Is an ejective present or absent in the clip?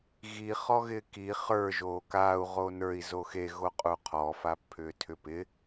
present